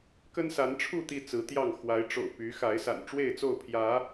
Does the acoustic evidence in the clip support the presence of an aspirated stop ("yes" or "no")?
yes